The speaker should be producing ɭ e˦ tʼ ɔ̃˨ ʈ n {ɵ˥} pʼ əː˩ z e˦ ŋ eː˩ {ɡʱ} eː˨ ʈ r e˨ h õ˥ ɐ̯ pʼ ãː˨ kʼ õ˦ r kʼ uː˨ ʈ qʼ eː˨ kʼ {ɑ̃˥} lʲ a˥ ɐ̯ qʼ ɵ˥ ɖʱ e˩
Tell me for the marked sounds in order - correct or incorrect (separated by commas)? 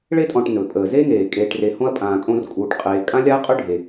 incorrect, incorrect, incorrect